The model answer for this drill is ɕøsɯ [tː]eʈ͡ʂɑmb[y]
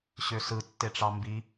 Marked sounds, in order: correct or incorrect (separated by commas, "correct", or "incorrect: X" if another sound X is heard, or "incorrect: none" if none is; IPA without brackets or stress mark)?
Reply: correct, incorrect: i